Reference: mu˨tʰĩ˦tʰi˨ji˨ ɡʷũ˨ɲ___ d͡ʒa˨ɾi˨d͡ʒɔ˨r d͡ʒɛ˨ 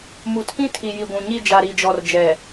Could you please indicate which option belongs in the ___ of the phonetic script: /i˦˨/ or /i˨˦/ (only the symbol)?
i˦˨